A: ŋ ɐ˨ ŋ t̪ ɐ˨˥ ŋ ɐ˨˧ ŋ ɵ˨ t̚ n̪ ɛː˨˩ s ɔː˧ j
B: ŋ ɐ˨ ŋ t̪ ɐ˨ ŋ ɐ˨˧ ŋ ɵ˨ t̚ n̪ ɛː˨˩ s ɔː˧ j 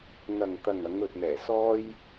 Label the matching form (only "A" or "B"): B